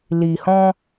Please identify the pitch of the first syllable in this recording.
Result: low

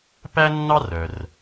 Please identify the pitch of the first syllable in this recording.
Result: high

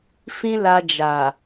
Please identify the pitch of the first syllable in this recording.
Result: high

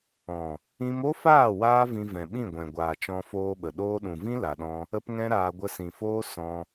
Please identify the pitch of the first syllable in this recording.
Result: low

